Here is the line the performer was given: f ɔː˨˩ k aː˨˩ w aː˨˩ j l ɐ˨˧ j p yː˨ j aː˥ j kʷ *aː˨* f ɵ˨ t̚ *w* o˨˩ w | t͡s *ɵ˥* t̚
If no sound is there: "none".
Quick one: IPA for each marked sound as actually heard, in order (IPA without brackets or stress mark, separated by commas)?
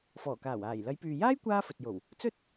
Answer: aː˥, j, ɵ˥